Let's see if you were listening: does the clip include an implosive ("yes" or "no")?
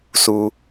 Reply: no